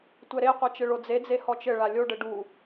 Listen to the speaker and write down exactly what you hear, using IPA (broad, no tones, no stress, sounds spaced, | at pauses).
tʷ ɛ ɾ e qʷ ɐ t͡ʃ ɘ ɭ o d͡z e d͡z e h ɔ t͡ʃ ɘ ɭ a lʲ o ɖ ɘ ɖ u